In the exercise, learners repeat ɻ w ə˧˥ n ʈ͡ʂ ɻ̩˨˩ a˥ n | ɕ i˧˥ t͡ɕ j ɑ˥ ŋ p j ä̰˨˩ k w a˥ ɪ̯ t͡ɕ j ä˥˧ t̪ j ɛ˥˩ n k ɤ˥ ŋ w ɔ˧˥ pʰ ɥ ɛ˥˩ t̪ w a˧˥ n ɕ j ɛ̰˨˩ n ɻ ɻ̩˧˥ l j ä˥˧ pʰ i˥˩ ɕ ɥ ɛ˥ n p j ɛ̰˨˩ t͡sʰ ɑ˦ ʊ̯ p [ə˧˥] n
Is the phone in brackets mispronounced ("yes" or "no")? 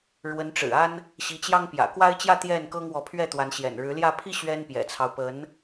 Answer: no